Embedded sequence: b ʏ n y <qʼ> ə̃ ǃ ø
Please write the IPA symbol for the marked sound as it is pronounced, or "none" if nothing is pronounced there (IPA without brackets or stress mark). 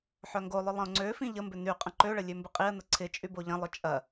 qʼ